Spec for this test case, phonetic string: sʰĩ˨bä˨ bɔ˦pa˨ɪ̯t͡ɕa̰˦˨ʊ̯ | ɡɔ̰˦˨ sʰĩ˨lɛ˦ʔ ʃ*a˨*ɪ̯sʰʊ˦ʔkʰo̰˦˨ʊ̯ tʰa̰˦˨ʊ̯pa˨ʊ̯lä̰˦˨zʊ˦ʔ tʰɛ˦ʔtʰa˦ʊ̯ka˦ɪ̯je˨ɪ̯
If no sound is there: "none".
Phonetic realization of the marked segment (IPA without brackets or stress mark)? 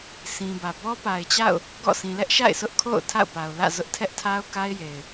a̰˦˨